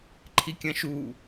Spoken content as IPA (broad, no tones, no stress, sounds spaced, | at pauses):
ǃʰ i kʲ ɐ̃ ʃ u